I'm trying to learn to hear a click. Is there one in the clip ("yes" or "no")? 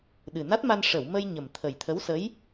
no